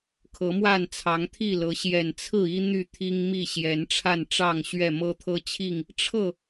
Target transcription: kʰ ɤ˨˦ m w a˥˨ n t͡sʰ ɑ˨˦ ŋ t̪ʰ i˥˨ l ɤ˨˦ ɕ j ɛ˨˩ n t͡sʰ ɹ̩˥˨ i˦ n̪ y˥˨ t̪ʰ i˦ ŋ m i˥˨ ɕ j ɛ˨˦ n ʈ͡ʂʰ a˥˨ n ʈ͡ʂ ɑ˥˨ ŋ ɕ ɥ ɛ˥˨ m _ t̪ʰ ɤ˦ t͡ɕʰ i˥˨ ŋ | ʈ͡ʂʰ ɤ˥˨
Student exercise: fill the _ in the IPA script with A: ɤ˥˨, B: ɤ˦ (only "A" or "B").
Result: B